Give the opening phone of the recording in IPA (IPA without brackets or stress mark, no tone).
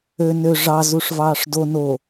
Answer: ø